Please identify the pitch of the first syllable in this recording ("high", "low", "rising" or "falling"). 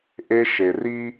high